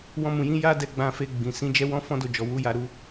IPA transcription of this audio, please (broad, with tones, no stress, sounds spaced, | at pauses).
w ɔ̃˧ m ũ˨ j ĩ˨˦ j a˦ d ɛ˧ ɡ͡b ã˧ f e˧ ɡ͡b ĩ˨ s ĩ˨˦ d͡ʒ ɛ˦ w ɔ̃˦ f ɔ̃˦ d o˦˨ d͡ʒ ɔ˨ w u˨˦ j a˧ ɾ u˧